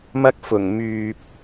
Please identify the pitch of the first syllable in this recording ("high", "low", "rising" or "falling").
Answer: high